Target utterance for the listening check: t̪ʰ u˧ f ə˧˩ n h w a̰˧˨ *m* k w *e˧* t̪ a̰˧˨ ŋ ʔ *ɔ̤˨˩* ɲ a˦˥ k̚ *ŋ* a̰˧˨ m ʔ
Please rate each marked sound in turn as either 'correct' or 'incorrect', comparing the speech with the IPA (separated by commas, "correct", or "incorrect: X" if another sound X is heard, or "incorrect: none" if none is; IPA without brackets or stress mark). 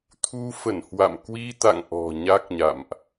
correct, incorrect: i˧, correct, incorrect: ɲ